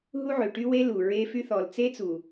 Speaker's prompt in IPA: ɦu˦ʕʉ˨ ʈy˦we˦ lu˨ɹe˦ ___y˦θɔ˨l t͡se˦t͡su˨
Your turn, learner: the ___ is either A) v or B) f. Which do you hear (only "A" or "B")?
B